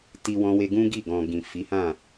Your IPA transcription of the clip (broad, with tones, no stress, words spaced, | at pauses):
ti˧ wɔ̃˦we˦ ɡũ˦ɡi˦˨ ɡɔ̃˨ ɡĩ˨ fi˨˦hã˦˨